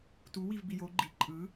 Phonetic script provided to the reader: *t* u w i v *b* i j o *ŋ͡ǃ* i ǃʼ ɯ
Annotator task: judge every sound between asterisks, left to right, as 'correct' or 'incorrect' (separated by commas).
correct, correct, incorrect